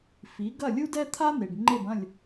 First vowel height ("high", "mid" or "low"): high